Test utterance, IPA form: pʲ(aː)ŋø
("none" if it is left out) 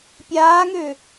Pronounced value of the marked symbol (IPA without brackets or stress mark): aː